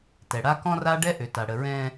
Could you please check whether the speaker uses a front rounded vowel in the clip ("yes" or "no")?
yes